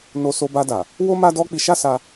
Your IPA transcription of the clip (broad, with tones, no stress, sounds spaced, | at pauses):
n o˧ s o˧ b a˧ d a˨ | w o˦ m a˦ d ɔ˦ k͡p i˧ ʃ a˦ s a˧